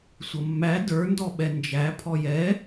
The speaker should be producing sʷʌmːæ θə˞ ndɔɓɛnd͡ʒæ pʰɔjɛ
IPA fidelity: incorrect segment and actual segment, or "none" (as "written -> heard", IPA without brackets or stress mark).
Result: θ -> d